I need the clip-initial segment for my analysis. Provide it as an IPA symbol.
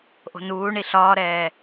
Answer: ʔ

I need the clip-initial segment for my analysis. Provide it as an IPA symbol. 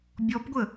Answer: bʲ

